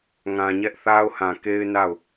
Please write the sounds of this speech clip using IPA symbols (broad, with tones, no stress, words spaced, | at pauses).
ŋã˨ɲɛ˦ʔθa˦ʊ̯hã˨ ke˦ɪ̯na˦˨ʊ̯